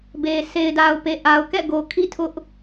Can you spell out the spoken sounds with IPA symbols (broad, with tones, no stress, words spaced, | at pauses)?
be˨ se˨ɪ̯da˨ʊ̯pe˨ ʔa˨ʊ̯kɛ̰˦˨ɡo˨ kʰḭ˦˨tʰʊ˦ʔ